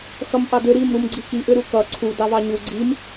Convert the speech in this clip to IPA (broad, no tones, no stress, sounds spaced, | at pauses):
x ʌ m ʔ ɑ d ʏ ɾ i m ɾ u m ɡ͡ǀ i k i ʔ ʏ ɾ u k ʌ ǀʰ u d ɑ v ɑ ɲ u ɡ͡ǀ i m